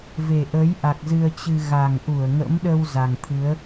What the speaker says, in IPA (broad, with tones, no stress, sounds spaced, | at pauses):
v e˨˩ ʔ əː˨˦ j ʔ a˨˩ k̚ z ɨ˧ ə̯ t͡ɕ ɨ˧ ɣ a˨˩ ŋ ʔ u˧˩ ə̯ ŋ ə̰˧˥ m ɗ ə˧ w z a˨˩ ŋ t̪ʰ ɨ˨˦ ə̯